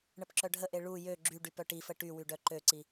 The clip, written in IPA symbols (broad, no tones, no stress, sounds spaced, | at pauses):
ɳ ə p ǁ œ ɖʱ ə ʔ e ɭ u j ø ɡ͡ǁ y ɖ y p œ ʈ i f ə ʈ y w y ɖ œ ǃ ø ǀ i